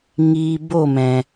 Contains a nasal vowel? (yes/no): yes